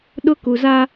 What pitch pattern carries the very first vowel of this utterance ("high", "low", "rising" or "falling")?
high